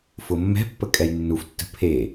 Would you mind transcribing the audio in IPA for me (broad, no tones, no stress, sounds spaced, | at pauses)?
f ʊ mː ɛ̤ pː ə kʼ ɛ j nː u f tː ə̤ pʰ e